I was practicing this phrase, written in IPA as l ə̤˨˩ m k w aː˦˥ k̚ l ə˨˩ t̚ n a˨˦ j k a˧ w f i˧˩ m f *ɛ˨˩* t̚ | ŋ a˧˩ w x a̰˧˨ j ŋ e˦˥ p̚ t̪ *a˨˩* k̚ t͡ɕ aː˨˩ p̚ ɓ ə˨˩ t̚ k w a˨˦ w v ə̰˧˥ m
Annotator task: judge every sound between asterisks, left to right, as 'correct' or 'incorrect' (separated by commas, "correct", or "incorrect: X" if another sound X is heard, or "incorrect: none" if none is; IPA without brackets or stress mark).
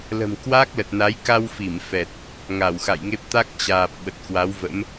correct, incorrect: a˦˥